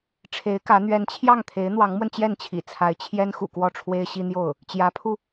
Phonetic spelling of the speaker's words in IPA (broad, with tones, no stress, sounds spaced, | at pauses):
ʈ͡ʂʰ e˧˥ ɪ̯ k ä˧˥ n̪ ɥ ɛ˧˥ n t͡ɕʰ j ɑ˥˩ ŋ t̪ʰ e˧˥ ɪ̯ n̪ w ɑ˧˥ ŋ m w ə˧ n t͡ɕ j ɛ˥˩ n t͡ɕʰ ḭ˨˩ t͡sʰ a˧˥ ɪ̯ t͡ɕʰ j ɛ˥ n x ṵ˨˩ k w ɔ˥˩ ʈ͡ʂʰ w e˥ ɪ̯ ɕ i˥ n̪ j o˥˩ ʊ̯ | t͡ɕ j ä˧˥ pʰ u˧